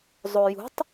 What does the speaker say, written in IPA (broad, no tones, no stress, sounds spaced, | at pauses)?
zˤ o j ṳ tˤ